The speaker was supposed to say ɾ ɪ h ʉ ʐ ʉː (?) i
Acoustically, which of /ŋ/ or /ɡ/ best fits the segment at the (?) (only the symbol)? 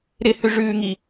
ŋ